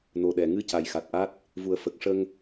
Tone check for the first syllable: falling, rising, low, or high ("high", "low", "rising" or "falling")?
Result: low